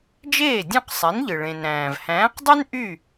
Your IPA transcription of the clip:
d͡ʒeː˥˩dʲõ˥˩qsˤe˩˥nʎɯ˩ ɭẽ˩nɾæ̃ː˩v hæ̃ː˩˥qdˤy˥n ʔy˥˩

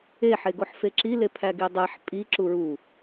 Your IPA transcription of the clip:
e ħeɡoħfeǁi lepʰæɡidˤæħ pʼi ǁuɹu

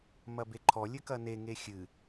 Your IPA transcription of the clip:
mɐbeǃʰɔ lʲɘkɐne ŋexʲɨ

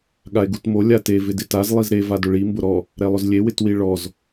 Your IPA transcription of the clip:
ɠae̯ɡutmo lʲate vɪdɪtaz lˠizɾe vadʊɭi mbʊɾɔ | ɾɛlˠʊzlʲe wɪtwiɭɔz

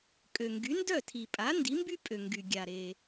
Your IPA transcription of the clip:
kʼø˩ŋɡy˩˥ndœ˥˩ tʰi˩pʼa˩˥ ndi˩˥mby˥pʼø˩ ŋɡy˩ ɡʲa˩ɾe˩

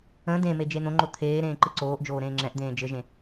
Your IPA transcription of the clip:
ə̃ dẽme d͡ʒen̪õŋ͡ǃo t̪ʰeː ɾẽːǃɯǀoːʔd͡ʒoː ɾẽːŋ͡ǁɛ̃ʔd̪ẽː d͡ʒɘʒẽ

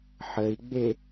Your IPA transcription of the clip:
ħəi̯ɡ͡be

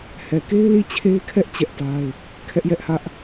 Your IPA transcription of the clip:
hɛ˨ke˦ɪ̯ li˦˨t͡ɕʰe˦ɪ̯kʰɛ˦ʔ t͡ɕɛ˦ʔta˦ɪ̯ | kʰɛ˦ʔjɛ˦ʔhä˦ʔ

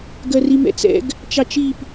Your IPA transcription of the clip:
ɡɜrimɛ̰t͡sɛ̰ɡ | t͡ʃɑt͡ʃip

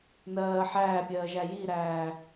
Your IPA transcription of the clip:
nɜː ħæːpʲɜːʒæ jiɾæː

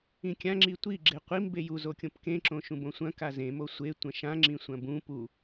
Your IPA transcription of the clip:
ĩkʲãŋ͡ǁi tʷi ɡ͡ǁeqʷim beju zokʲõpkẽ ǁõʃũbõsʷɐ̃ kazẽmo sʷe tʷɐ̃ʃã ŋ͡ǁĩsʷɐ̃bũ pu

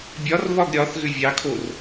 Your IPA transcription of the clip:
bʲɒrβɒɡ ɾʲɒθɣʏ vʲɑkʰor

